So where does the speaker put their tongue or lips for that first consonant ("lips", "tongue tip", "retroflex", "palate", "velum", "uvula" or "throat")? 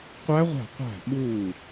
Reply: uvula